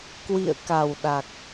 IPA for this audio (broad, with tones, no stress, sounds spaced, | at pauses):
k w ḭ˧˨ ə̯ k a˨˩ w ɗ a˨˩ k̚